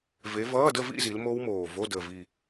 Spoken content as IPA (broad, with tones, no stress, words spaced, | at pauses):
ve˨˦vʌː˧˥˧də˥˧vḭ˥˧ zi˨˦lmo˦˥wmoː˨˩vo˧˥˧ dəː˨˩vi˨˩